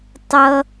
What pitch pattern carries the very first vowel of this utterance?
high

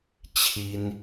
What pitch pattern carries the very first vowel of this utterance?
high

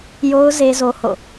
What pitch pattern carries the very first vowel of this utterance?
high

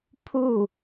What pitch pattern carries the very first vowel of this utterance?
falling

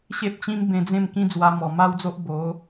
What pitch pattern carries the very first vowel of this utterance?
high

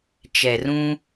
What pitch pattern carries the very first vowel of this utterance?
low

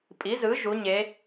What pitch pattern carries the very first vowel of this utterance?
rising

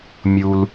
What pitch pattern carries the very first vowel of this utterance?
low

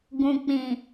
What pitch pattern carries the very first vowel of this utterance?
low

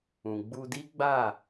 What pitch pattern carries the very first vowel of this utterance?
low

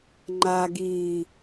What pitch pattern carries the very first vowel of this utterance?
low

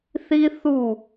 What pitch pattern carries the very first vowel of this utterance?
high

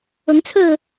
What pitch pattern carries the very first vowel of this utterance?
rising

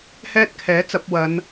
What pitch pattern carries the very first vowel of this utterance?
high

